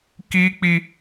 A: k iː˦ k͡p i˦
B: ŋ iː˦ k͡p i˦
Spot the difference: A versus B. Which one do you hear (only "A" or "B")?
A